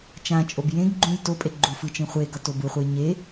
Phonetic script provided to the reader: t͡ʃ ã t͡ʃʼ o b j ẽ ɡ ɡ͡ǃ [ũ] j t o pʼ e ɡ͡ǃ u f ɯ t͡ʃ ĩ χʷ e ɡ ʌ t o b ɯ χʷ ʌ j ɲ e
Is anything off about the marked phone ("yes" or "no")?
no